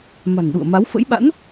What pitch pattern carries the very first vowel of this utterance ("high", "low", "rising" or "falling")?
low